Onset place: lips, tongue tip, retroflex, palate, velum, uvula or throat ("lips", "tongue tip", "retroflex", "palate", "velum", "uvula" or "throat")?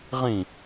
uvula